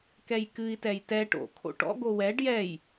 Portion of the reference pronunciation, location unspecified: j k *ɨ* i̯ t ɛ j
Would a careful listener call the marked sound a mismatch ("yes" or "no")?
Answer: no